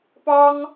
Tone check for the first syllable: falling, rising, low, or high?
high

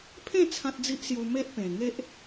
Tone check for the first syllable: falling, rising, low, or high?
falling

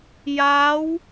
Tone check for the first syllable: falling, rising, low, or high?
rising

